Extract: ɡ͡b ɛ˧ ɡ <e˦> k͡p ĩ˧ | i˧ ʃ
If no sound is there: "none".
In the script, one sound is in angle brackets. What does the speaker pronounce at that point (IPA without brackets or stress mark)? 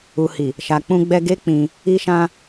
e˦